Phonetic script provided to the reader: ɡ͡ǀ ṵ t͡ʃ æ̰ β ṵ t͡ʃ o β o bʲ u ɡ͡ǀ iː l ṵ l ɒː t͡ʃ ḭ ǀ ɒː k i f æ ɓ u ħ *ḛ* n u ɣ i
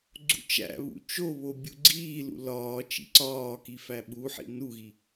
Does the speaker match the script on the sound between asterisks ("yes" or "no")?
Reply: no